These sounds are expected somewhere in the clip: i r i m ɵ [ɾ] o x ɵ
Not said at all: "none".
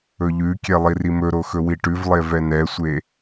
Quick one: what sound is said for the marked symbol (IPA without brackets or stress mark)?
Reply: ɾ